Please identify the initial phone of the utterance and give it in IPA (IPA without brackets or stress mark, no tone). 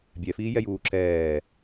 bʲ